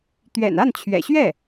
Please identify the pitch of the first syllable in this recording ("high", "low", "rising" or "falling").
low